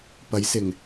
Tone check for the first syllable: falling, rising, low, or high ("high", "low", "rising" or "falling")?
rising